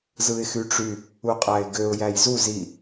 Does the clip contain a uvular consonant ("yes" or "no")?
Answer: yes